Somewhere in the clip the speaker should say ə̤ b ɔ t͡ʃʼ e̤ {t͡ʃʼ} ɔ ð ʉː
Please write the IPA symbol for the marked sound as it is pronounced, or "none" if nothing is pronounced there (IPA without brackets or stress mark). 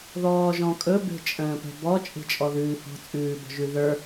t͡ʃʼ